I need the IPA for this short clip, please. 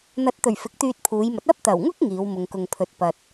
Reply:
n̪ ɐ˨˥ t̚ t̪ ɵ˨˩ ɥ f ɪ˨˥ k̚ t̪ yː˧ t̚ pʰ uː˨˧ j m ɐ˨˥ t̚ ɐ˥ p̚ t̪ ɐ˨˩ w ŋ ʊ˥ k̚ ŋ iː˨˧ w m ʊ˨ ŋ k ʊ˨ ŋ pʰ ɵ˨ t̚ p ɐ˨ t̚

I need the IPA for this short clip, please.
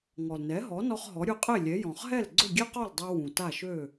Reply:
ŋ ɔ˩ l n ɛ˩˥ ɦ ɔ˩˥ n ɔ˧ χ ɦ ɔ˩˥ ɾʲ u˧ qʼ e˥˩ lʲ ɛ˩˥ j ɔ̃˩ χ ɦ ɛ˥˩ l ɡ͡ǀ ʊ˥˩ ɡʲ ɛ˥ q ɔ˥˩ l dˤ ɛ˧ w ũ˩ t a˥˩ ʃ ø˥˩

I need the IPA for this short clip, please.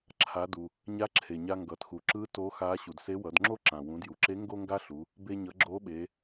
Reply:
ǁʰ a˩˧ d u˩ | ɲ a˧˥ ǁʰ e˩ ɲ a˧ ŋ ɡ ʌ˩ t x u˩ ǁ ɯ˧˥ t o˧˥ x a˧˥ ɕ u˩ d s e˧˥ w ʌ˩˧ d ŋ͡ǁ o˥ ǁ ã˩ w ũ˩˧ d j u˩ ǁ e˧˥ ŋ ɡ o˥ ŋ ɡ a˥ ɬ u˩˧ | b e˧ ɲ ʌ˩˧ ɡ͡ǁ o˧˥ ɓ e˩˧

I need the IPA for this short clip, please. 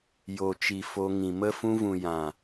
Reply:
j o˨ t͡ʃ i˨ f o˧ ŋ ĩ˨ m ə˧ f ũ˧ v ũ˨ j ã˨

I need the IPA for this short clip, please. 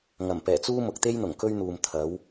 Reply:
ŋ ɐ˨˩ m p ɛː˨˩ t͡s uː˥ m ʊ˨ k̚ t̪ e˥ j n̪ ʊ˨˩ ŋ k ɵ˥ ɥ n̪ uː˨ m t̪ʰ ɐ˨˥ w

